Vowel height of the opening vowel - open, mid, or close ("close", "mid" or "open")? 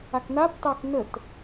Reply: open